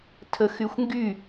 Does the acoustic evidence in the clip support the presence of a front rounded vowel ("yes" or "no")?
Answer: yes